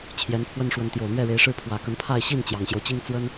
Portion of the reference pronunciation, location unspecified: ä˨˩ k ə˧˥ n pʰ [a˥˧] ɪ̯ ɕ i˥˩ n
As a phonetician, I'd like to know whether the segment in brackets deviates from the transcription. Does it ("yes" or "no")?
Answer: no